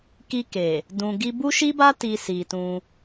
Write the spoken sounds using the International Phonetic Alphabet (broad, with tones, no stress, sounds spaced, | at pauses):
k i˧ k e˨ | d ũ˨ ɡ i˧ b u˦ ʃ i˦ b a˦ t i˧ s i˨ t ũ˧